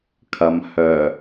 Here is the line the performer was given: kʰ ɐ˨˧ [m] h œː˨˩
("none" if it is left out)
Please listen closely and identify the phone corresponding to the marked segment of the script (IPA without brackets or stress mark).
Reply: m